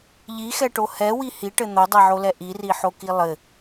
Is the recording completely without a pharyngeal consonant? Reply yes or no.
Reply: no